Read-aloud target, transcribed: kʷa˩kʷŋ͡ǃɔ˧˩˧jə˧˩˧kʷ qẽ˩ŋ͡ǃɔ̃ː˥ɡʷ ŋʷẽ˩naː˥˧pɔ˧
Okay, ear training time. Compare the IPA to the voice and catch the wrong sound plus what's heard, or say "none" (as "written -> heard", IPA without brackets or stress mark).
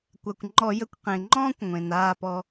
ɡʷ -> kʷ